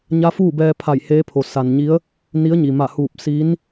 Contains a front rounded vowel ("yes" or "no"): no